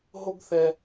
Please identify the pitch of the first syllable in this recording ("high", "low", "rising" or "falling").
high